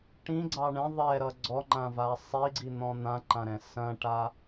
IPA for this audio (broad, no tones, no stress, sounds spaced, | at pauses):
ʈ ĩ ɡ͡ǀ ɑ ɳ ɛ̃ ðˤ ɛ ɾ ʌ ɡ͡ǀ ɔ ŋ͡ǃ ã v a sˤ i ɡ͡ǀ i n̪ ɔ̃ n̪ ã ǃ ã ɾ ɛ̃ s ɐ̃ ʈ a